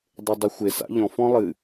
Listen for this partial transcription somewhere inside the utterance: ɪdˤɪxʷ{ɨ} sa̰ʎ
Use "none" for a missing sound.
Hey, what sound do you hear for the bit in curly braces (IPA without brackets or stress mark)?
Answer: ɪ